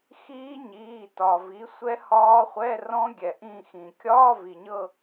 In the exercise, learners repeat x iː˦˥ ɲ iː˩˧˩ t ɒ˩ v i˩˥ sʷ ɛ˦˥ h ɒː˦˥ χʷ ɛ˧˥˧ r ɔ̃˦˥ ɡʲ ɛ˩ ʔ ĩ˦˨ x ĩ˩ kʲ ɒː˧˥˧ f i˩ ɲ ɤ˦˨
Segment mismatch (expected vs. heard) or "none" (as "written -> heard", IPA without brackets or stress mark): f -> v